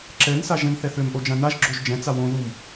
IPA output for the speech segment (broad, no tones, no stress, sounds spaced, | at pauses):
ǁ ɛ n s a ʒ ɛ̃ n θ ɛ θ ø m ʔ o d͡ʒ ã n a ʒ ɡ͡ǁ o ʒ d͡ʒ ɛ̃ t͡s a w õ ð u m